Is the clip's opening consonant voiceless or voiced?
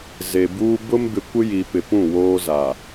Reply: voiced